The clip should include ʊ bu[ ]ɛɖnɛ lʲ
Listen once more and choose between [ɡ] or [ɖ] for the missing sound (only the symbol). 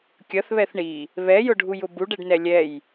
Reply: ɖ